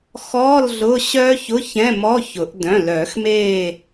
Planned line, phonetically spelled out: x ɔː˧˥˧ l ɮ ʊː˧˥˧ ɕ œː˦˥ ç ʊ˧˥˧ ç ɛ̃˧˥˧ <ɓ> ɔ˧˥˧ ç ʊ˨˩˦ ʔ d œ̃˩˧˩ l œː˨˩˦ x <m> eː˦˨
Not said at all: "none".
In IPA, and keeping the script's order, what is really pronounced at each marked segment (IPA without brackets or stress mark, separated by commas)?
m, m